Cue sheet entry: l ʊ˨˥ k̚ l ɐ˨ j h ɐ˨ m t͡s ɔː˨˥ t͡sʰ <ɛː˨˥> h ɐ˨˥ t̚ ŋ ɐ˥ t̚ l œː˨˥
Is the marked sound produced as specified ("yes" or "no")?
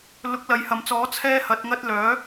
no